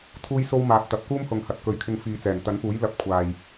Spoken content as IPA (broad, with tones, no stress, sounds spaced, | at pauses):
t̪ʰ uː˥ j s o˥ w m aː˧ p̚ t̪ ɐ˨ p̚ k uː˥ m h ʊ˨ ŋ h ɐ˨ t̚ k ɵ˨˧ ɥ kʰ ɪ˧ ŋ f iː˨ t͡s ɛː˨˩ n t̪ ɐ˨˥ n p uː˨˥ j l ɐ˨˥ p̚ kʷʰ aː˨ j